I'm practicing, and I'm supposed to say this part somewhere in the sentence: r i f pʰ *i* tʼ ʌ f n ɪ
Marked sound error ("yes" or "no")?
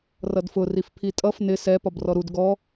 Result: no